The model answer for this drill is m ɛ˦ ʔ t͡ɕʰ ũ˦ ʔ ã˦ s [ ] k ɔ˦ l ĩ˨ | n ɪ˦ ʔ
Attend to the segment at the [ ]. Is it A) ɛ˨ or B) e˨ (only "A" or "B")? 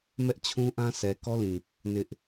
A